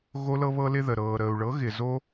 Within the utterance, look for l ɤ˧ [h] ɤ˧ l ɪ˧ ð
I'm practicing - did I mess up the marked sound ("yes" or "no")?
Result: yes